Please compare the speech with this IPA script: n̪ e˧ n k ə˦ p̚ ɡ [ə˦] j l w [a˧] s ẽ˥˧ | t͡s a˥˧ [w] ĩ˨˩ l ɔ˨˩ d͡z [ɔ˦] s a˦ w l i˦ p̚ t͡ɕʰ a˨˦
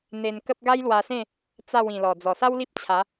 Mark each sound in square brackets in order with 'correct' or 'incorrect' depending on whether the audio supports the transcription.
incorrect: a˦, correct, correct, incorrect: ɔ˨˩

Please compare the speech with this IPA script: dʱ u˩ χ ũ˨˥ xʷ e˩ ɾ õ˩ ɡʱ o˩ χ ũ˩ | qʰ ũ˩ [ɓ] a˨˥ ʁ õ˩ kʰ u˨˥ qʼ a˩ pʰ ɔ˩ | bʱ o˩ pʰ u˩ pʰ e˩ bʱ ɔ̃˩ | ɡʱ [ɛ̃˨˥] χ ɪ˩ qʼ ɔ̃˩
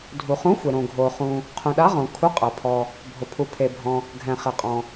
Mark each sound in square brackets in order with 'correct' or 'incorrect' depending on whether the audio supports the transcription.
incorrect: ɗ, incorrect: ɛ̃˩

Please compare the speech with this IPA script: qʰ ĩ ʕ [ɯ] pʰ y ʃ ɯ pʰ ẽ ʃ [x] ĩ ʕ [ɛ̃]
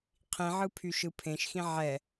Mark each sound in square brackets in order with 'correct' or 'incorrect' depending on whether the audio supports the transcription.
correct, correct, incorrect: ɛ

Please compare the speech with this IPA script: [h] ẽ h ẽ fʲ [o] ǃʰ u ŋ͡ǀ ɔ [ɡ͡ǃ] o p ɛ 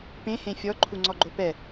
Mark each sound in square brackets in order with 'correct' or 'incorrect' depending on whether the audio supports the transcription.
incorrect: p, incorrect: ɔ, correct

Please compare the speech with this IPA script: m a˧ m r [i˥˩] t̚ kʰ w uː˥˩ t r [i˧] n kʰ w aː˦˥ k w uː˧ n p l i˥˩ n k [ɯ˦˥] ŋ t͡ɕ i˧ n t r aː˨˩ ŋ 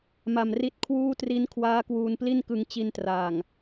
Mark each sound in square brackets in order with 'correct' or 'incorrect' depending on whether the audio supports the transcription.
correct, incorrect: i˦˥, incorrect: ɯ˧

